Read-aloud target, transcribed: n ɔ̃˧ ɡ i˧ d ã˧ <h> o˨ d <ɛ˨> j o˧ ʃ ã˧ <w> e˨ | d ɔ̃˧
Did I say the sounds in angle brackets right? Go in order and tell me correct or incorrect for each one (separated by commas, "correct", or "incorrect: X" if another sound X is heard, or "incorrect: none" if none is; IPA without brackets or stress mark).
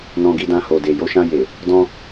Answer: correct, incorrect: e˨, incorrect: j